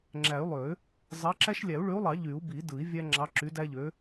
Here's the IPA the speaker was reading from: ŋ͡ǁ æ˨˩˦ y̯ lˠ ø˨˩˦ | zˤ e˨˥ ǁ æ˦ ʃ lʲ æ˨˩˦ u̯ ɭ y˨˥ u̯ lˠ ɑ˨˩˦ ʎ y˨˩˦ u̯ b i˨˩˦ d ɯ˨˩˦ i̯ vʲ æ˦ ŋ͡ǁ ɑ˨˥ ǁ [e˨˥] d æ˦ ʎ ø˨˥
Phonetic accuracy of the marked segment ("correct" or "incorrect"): incorrect